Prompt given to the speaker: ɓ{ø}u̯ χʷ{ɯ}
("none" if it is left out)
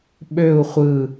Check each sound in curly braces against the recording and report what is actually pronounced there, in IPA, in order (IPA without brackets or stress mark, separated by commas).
ø, ɯ